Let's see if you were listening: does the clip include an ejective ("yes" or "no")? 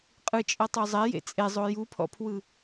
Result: yes